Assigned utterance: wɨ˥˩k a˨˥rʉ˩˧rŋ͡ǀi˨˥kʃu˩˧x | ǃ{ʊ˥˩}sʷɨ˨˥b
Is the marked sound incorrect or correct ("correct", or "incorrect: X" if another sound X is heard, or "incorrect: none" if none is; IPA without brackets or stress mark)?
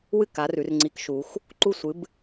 incorrect: u˥˩